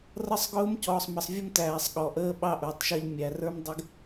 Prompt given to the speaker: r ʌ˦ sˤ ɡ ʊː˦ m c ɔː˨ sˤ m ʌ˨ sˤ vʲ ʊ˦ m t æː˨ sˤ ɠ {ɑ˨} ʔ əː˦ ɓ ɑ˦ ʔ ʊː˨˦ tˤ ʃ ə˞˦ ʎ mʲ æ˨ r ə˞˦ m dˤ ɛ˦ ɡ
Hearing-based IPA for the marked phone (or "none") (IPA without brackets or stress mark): ɔ˨